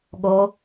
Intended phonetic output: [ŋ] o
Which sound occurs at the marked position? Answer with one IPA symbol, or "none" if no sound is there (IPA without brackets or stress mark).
ɠ